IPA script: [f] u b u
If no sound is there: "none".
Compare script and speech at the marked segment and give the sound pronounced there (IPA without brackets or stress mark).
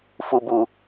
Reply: f